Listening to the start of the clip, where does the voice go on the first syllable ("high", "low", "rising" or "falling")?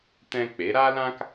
high